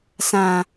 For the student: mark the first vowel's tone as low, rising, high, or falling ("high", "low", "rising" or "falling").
low